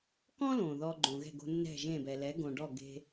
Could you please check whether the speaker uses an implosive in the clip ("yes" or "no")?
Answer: no